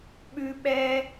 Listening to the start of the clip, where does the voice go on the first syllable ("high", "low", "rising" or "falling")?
high